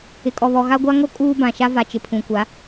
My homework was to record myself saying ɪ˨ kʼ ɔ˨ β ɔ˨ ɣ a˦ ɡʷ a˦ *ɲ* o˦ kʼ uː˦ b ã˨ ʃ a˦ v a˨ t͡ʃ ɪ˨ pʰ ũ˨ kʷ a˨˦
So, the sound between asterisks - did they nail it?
no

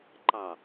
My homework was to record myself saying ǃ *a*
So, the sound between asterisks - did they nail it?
no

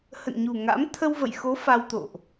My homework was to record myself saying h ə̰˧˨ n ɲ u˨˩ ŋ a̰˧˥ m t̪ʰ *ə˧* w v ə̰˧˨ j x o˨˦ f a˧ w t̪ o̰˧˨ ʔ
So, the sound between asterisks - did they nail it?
yes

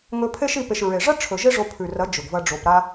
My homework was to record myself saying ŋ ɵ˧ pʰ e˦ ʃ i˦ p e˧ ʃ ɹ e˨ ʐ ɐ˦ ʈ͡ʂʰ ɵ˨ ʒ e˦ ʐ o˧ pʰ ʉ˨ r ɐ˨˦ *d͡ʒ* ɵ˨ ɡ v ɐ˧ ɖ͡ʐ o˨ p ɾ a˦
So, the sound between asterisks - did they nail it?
yes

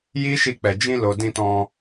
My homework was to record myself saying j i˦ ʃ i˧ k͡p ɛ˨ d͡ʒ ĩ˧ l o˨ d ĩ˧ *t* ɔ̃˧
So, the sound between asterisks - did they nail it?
yes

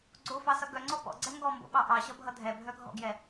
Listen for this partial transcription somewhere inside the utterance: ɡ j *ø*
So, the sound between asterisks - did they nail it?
no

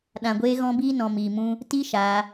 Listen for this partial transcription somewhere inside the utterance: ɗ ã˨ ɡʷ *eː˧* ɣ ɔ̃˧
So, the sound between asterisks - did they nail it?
yes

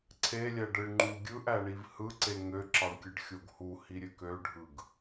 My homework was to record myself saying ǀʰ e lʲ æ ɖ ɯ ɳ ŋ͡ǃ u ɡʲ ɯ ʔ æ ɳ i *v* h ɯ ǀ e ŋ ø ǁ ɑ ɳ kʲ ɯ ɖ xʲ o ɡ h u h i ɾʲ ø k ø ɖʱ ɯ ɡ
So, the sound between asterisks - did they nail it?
yes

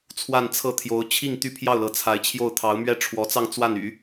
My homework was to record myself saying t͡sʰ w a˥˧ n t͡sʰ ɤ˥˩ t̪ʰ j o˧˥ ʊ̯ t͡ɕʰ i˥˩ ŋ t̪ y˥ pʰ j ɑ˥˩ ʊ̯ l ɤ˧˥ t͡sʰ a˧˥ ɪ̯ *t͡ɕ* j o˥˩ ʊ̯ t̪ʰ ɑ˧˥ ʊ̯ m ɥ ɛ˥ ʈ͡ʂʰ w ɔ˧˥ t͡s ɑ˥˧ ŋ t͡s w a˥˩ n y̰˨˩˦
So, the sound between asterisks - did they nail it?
no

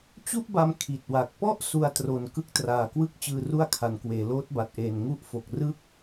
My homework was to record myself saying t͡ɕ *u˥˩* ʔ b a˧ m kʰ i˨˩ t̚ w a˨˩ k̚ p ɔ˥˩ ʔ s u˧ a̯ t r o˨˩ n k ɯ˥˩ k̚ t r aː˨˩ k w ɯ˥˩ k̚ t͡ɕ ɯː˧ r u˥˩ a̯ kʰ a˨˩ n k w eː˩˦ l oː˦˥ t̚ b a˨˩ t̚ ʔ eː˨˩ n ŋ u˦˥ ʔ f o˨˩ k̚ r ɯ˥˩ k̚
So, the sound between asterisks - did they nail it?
yes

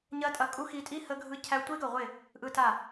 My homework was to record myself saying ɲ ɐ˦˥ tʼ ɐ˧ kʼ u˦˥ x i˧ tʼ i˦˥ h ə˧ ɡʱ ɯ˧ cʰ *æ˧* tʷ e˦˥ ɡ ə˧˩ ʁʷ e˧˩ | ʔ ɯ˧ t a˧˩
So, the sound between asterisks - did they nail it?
yes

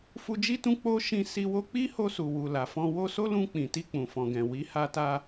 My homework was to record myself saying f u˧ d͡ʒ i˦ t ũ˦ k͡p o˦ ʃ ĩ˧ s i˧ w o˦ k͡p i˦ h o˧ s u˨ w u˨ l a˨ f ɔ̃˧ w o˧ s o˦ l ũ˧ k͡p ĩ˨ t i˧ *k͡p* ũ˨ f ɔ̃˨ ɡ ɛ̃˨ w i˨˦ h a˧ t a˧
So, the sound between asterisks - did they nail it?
yes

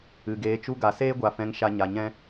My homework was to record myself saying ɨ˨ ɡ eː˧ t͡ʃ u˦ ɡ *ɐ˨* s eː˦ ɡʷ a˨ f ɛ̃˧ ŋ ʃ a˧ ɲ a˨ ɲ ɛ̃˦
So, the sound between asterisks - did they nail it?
no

